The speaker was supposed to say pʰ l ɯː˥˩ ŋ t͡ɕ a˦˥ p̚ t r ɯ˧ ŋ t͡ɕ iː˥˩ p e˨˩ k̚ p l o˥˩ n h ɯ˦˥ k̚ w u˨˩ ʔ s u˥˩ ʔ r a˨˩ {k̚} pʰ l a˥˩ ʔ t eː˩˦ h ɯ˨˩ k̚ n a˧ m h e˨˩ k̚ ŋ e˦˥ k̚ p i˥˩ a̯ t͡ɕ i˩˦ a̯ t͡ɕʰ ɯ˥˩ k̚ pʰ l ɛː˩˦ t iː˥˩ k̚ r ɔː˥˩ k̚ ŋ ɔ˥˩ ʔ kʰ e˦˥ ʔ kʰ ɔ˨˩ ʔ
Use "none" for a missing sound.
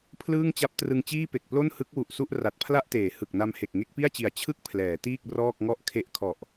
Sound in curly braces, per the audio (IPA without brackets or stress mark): t̚